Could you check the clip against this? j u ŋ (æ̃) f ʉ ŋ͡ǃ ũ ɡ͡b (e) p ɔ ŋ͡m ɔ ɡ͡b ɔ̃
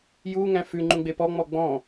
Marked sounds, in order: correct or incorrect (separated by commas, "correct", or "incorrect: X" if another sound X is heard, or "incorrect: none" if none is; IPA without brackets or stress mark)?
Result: correct, correct